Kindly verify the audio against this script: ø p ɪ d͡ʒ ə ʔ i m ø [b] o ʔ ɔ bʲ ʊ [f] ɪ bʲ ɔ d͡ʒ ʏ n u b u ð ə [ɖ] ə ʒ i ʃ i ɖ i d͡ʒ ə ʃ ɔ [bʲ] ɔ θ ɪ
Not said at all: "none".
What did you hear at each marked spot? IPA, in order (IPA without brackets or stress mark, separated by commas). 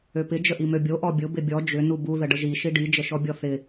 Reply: bʲ, b, ɖ, bʲ